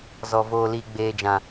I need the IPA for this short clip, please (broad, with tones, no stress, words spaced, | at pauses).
zɔ˨ voː˨liː˨ ɡ͡beː˨d͡ʒã˨